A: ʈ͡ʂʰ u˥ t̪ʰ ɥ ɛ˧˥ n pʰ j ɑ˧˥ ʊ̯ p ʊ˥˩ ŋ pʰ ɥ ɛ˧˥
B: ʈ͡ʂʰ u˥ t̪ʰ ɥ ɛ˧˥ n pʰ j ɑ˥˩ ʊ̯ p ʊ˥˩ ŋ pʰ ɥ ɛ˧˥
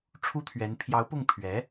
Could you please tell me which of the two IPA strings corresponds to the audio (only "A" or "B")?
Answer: A